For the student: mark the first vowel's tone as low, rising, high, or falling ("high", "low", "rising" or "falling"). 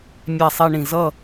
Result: low